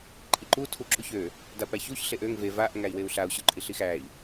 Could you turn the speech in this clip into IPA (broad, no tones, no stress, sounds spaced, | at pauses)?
ǃʼ i ǃ u tʰ u ǁ u ç ø | d a p æ ç u ç ɬ e ʔ ø ŋ v e v a ʔ ŋ æ i̯ w e u̯ ɬ a u̯ ɕ u ǃʼ i ɬ i x æ i̯